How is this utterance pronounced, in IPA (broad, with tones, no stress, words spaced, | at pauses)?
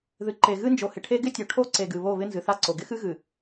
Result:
ðɨ˨ǃe˨ɣɨ˦nd͡ʒo˨ hɪ˨ʈʰe˦ ɡɪ˦tʲo˨ ʈʰo˦ǀe˨ɡɨ˨βo˦˨ βɪ˦nzɨ˨θa˦ǀo˨ ɡɪ˦xɨ˦ɣɨ˨